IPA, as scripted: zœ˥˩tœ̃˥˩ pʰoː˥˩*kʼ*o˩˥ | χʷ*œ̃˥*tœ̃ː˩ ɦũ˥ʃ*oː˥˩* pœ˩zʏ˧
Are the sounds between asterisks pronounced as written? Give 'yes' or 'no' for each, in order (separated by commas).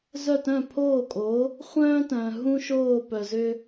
yes, no, yes